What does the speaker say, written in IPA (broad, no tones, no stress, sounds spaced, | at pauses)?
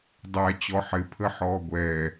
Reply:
dˤ æ t͡ɕ ɔ ħ ɪ pʰ ə ħ ɔː ɡʷ ɛ